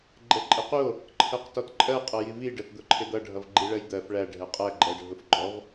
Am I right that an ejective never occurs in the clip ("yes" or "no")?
no